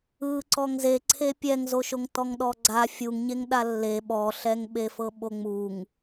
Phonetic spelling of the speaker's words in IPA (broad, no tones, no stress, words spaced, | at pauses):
ɯǀɔŋ zeǀʰe pʲɛŋzoʃoŋ tɔŋɗɔɡ͡ǀa fʲuŋɲeŋ ɗalːe ɓɔɬɛŋɓefɤ ɓoŋ͡muŋ